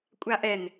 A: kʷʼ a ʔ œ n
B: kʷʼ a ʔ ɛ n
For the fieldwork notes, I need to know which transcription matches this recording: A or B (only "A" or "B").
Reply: B